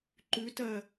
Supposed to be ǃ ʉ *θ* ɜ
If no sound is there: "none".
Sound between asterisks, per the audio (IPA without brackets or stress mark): t